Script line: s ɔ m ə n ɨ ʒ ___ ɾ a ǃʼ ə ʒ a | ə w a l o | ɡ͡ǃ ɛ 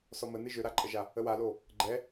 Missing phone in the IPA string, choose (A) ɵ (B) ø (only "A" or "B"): B